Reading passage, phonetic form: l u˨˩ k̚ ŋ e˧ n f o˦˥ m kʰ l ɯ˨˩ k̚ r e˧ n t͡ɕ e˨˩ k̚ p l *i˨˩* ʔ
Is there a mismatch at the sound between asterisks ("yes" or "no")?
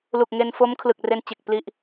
yes